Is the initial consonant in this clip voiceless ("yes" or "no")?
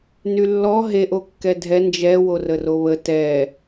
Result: no